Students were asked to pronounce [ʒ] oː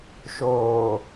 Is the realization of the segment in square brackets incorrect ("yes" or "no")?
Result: yes